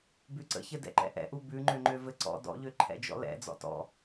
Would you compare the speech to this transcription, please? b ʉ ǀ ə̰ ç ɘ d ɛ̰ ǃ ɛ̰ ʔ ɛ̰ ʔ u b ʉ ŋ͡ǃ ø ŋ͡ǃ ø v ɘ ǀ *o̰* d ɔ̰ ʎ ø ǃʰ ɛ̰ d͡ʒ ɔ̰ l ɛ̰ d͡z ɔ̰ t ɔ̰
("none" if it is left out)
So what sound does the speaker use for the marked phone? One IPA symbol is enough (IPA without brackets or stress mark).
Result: ɔ̰